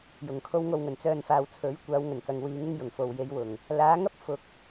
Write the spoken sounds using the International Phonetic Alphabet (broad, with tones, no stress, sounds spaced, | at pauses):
j ʊ˨˩ ŋ kʰ o˨˧ w ŋ o˨ w ŋ ɵ˨˩ n t͡s œː˨ n f aː˨ w t͡sʰ ɵ˨˥ ɥ kʷ aː˨˧ w ŋ ɵ˨˩ n k ɐ˨ ŋ w iː˨˧ ŋ ɪ˥ ŋ j ʊ˨˩ ŋ f o˨ w j e˨˧ j w ʊ˨˩ ŋ | l aː˨˥ ŋ ɐ˥ p̚ f ʊ˨ k̚